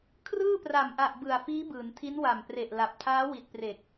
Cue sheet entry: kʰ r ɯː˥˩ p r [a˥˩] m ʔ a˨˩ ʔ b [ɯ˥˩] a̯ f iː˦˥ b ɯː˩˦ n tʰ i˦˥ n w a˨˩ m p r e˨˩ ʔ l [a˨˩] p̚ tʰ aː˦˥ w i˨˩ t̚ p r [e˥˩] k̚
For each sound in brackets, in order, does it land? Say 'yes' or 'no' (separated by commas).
no, no, yes, no